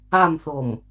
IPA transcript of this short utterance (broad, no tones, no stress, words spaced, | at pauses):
amθom